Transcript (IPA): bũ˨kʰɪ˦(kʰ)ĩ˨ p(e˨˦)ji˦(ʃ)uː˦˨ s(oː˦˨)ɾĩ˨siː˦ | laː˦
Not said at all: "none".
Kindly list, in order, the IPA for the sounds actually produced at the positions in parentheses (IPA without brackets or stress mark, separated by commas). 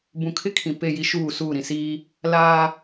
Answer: kʰ, e˦˨, ʃ, uː˦˨